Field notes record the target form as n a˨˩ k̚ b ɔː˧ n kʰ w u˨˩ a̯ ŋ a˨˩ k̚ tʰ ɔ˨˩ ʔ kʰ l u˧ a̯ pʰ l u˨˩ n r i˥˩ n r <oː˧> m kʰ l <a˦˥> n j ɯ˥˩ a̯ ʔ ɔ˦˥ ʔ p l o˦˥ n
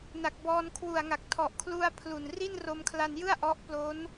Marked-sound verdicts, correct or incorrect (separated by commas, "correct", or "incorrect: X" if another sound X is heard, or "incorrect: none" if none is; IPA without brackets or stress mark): incorrect: o˧, incorrect: a˧